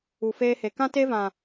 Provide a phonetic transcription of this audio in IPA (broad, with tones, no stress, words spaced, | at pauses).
u˨feː˧he˨ kã˦te˦vã˨